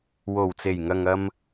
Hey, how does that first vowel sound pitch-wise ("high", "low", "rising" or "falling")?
low